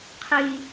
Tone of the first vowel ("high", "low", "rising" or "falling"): high